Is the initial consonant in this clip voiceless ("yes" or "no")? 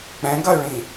yes